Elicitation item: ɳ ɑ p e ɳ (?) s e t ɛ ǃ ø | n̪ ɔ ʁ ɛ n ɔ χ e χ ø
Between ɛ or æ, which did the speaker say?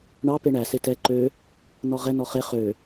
æ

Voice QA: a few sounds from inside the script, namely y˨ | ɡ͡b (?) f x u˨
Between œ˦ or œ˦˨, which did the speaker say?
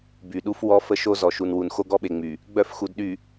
œ˦˨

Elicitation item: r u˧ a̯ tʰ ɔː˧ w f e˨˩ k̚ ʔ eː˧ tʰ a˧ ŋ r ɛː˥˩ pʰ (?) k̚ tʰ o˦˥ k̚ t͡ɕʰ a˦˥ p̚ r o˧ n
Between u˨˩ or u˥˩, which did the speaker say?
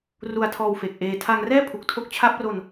u˨˩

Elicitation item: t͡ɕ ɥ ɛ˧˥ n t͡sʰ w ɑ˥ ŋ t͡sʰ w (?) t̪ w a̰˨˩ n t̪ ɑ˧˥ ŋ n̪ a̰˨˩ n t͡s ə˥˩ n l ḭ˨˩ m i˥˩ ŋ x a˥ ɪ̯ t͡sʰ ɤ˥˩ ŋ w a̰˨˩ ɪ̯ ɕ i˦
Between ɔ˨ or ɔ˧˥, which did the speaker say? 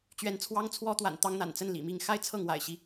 ɔ˧˥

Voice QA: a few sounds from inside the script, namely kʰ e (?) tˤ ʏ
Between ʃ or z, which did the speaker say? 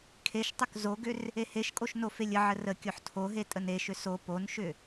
ʃ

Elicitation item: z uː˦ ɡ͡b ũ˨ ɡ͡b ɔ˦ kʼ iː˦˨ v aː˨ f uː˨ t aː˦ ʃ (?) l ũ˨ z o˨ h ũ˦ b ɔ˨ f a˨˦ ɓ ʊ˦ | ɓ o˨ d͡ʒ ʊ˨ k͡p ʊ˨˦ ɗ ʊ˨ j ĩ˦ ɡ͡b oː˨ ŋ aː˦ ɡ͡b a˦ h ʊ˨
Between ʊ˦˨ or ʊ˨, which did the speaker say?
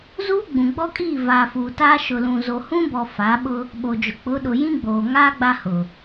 ʊ˨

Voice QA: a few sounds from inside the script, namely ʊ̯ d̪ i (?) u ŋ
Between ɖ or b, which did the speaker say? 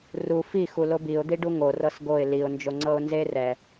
ɖ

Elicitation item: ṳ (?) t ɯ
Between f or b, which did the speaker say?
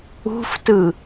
f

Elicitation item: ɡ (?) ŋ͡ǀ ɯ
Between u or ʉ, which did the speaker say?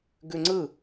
ʉ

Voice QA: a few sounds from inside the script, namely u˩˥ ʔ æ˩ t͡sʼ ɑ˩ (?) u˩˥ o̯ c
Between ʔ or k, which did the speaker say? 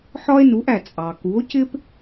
k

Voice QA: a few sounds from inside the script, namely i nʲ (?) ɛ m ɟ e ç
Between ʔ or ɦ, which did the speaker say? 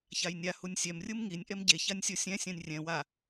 ʔ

